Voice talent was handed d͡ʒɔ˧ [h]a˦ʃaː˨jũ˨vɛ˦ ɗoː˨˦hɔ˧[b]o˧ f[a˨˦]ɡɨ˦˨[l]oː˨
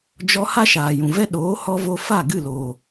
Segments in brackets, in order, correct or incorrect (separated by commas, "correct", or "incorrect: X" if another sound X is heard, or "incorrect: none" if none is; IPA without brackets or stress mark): correct, incorrect: v, incorrect: a˦˨, correct